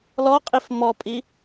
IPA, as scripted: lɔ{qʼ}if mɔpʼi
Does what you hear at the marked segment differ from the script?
no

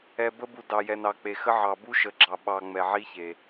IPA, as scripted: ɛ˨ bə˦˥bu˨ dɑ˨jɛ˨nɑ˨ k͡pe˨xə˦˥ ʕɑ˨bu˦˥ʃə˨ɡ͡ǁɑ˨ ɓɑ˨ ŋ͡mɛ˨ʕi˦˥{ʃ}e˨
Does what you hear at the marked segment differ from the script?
yes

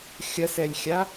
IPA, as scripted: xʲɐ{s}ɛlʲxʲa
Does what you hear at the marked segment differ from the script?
no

